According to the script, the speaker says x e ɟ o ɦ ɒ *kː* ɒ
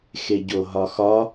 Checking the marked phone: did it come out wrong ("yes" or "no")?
yes